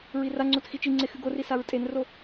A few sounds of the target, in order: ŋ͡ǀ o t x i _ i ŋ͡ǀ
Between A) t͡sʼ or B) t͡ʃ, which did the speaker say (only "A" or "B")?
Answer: B